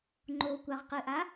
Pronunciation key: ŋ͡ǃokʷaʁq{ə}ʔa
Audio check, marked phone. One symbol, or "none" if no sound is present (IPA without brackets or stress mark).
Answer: ɨ